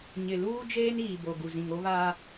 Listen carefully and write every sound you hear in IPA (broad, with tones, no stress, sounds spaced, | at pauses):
ɲ ɪ˨ l uː˦ d͡ʒ eː˦ n iː˨ b o˨ ɡ u˨ z ĩ˨ ŋ o˦ β aː˦